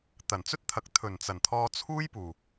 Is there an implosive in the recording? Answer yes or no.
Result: no